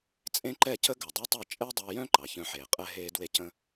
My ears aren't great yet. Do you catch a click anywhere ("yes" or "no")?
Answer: yes